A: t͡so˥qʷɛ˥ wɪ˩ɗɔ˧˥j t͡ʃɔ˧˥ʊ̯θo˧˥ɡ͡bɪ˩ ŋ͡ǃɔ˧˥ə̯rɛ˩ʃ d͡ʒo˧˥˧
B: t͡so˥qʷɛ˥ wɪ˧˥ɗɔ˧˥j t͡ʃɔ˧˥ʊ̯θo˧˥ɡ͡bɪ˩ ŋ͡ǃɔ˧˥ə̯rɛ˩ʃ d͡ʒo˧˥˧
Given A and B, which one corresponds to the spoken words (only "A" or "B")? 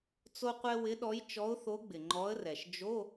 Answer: B